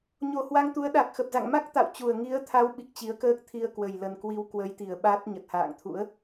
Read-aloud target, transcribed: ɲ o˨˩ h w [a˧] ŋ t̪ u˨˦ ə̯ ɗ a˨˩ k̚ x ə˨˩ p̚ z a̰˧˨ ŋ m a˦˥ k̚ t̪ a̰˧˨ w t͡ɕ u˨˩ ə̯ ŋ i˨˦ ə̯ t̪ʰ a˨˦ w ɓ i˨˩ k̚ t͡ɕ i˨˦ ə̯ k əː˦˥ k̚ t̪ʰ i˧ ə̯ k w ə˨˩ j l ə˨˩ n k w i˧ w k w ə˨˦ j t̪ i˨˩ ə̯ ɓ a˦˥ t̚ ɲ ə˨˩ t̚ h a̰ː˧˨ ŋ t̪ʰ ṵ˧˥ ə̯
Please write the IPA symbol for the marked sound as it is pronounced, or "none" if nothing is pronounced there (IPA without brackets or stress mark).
a˧